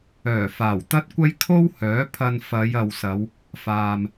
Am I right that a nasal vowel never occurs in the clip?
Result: yes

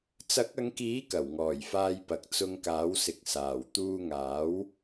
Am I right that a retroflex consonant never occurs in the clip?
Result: yes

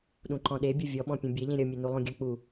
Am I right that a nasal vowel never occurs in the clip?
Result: no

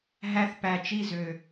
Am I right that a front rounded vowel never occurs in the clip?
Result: no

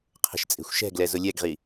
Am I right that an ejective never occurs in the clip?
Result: no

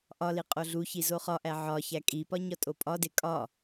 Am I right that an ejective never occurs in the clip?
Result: no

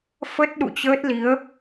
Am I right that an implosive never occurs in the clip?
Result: no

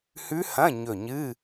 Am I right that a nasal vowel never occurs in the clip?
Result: no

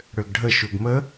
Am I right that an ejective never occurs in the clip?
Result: yes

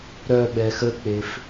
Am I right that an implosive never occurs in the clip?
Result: no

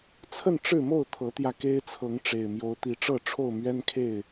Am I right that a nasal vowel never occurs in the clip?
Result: yes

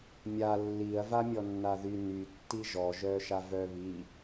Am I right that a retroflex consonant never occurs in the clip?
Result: yes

